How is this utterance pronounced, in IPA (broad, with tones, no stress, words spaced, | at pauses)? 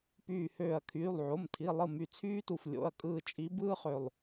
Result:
pyː˧˩høː˧˩ɐ̯kʰyː˩˧˩lˠ ʕo˩˧˩mtʰi˩˧˩ lˠɯ˥˩my˧˩t͡sʰyː˥tu˧˩f lʲo̰˩˧˩ɐ̯kʼɯː˧˩t͡ʃʼi˨˦ bɯː˥χø˧˩lˠ